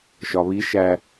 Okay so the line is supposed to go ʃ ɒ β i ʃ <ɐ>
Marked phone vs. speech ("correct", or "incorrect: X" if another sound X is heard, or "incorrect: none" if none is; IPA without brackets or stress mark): incorrect: æ